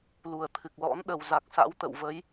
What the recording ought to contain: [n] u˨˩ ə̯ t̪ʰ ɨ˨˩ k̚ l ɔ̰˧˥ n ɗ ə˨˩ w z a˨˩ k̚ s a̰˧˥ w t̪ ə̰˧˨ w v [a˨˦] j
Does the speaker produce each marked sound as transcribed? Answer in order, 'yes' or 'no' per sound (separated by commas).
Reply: no, no